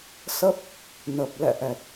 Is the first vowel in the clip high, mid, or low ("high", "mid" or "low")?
mid